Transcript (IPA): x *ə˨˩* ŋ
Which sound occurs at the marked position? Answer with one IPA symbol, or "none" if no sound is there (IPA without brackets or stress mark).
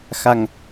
a˨˩